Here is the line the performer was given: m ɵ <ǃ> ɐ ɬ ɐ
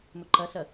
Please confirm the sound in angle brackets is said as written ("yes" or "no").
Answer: yes